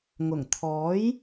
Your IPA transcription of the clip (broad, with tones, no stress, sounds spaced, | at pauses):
ŋ ʊ˨˩ ŋ t̪ʰ ɔː˨˥ j